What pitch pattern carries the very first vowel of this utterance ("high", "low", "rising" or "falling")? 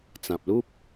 low